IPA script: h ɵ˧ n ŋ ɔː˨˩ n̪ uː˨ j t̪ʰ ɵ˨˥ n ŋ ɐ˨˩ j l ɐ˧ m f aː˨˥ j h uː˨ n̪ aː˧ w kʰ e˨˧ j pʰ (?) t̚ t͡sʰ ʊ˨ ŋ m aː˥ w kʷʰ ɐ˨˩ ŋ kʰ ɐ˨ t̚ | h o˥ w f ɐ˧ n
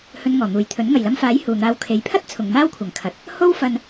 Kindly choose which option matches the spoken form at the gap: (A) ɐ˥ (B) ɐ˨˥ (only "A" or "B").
A